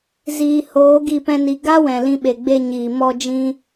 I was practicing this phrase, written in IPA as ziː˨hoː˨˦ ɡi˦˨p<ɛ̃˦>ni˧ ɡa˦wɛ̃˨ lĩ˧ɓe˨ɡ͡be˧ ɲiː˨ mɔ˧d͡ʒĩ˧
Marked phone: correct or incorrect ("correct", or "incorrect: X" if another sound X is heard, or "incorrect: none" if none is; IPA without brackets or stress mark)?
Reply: correct